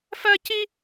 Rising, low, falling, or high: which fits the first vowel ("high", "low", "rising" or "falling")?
high